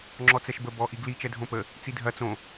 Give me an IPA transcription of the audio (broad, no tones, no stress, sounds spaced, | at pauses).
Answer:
ŋ͡ǁ ɔ t͡s ɛ ʃ b ə b ɔ ʔ i ɡ l i t͡ʃ ɛ dʱ õ p ə | t͡s i dʱ ɐ t͡s õ